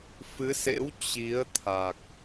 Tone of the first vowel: rising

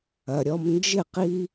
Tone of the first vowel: low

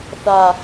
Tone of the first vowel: low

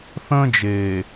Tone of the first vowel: high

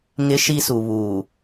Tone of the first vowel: high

